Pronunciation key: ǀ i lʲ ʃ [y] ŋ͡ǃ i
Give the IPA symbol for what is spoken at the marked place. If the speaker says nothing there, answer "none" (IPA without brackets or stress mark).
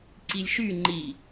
y